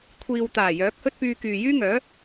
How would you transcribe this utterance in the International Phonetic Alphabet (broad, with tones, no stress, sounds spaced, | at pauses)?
kʷʰ iː˨ w t̪ aː˨˩ j œː˨˥ k̚ h ɵ˥ t̚ p yː˧ k yː˨ j yː˥ ŋ œː˨˥